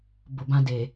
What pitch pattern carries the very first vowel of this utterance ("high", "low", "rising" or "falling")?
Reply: low